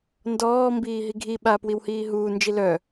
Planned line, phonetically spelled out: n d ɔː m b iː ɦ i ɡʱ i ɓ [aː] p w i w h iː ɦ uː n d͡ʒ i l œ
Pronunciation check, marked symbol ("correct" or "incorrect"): correct